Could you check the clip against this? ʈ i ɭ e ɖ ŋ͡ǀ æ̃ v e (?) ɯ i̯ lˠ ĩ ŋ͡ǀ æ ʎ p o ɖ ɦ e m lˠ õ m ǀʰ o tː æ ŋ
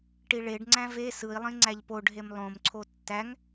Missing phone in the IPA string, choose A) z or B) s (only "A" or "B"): B